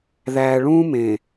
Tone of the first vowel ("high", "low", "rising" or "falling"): low